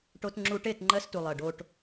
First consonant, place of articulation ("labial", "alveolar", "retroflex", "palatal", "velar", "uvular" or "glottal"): retroflex